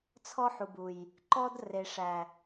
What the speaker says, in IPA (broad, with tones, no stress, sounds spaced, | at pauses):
t͡sʰ ɔ˦ ħ u˨ b u˨ j | ǃ ɔ˦ d r e˨ ʂ æ˨